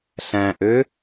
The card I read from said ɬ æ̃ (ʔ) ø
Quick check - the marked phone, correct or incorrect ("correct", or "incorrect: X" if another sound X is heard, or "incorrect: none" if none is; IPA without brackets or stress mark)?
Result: correct